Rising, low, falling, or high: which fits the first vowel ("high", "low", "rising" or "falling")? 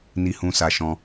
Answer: high